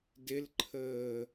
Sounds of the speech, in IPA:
d ɪ l ǃʰ əː

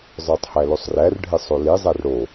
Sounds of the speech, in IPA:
zˤ ə˞ tˤ h æ l o sˤ r æ r ɖʱ e sˤ o l i zˤ æ r ɽ o

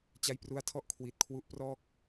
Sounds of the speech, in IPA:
t͡ɕ a˦˥ j p r u˦˥ a̯ tʰ ɔ˥˩ ʔ kʰ w i˨˩ t̚ kʰ w u˦˥ ʔ p r ɔː˥˩ k̚

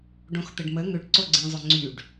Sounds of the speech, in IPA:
ɖ õ x t̪ ə ɖ m ə ŋ ʏ ɖ ǀ o ɡ͡ǀ ĩ zˤ ʏ ŋ͡ǀ y ɖ

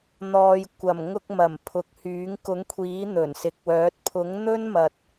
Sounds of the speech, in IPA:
n̪ ɔː˨ j kʷ ɐ˨˩ m ŋ ʊ˧ k̚ m ɐ˨˩ m pʰ ʊ˨ k̚ h yː˨˥ ŋ k ʊ˨˥ ŋ kʷʰ iː˨˥ n̪ ɵ˨˩ n s ɪ˨˥ k̚ w œː˨˥ t̚ pʰ ʊ˨˥ ŋ n̪ ɵ˥ n m ɐ˨ t̚

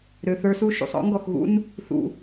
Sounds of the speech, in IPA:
ɾ ø˨ θ ə˞˦ s u˦ ʃ ṵ˨ sˤ ɔ̰˦ ŋ ɡ ɔ˨ x ɣ ṵ˦ n | θ ṵ˨

